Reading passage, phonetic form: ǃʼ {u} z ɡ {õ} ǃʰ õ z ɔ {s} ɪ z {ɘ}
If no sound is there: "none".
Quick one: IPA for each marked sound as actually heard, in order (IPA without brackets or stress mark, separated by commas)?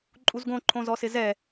u, õ, s, ɛ